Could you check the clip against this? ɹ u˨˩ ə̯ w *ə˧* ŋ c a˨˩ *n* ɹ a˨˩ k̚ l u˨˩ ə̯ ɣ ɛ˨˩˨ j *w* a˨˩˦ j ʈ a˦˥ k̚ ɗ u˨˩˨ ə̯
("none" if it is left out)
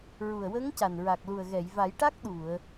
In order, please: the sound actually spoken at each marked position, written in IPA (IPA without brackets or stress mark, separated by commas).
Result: ə˧˥, n, v